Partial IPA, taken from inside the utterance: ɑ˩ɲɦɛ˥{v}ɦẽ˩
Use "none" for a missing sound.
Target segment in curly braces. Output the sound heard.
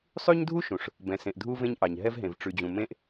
v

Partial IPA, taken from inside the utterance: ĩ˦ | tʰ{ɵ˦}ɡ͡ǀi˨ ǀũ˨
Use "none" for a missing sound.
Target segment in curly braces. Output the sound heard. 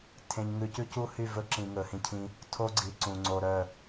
o˦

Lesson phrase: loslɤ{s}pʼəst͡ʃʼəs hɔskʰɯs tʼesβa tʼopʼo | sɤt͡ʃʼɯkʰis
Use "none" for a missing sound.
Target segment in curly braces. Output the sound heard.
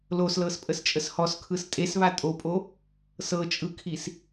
s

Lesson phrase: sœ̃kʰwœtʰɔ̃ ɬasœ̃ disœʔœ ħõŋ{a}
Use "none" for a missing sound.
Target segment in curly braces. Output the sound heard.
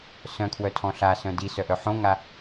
a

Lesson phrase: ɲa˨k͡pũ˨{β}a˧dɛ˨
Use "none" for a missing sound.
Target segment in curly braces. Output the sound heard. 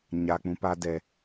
p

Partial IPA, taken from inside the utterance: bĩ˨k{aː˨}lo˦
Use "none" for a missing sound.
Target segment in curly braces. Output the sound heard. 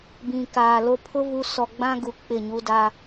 aː˨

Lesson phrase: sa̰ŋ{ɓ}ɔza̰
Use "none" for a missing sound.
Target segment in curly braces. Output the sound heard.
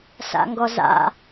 ɡ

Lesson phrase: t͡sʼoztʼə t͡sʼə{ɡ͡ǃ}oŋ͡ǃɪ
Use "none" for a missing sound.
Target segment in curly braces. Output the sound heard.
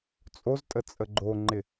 ɡ͡ǃ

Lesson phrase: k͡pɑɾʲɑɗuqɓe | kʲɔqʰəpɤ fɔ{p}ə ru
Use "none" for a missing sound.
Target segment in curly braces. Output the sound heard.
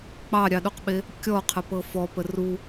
p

